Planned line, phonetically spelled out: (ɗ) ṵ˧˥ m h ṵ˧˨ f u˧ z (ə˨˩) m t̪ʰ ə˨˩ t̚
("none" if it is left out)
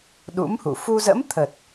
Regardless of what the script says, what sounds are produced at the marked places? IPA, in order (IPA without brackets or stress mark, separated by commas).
ɗ, ə̰˧˥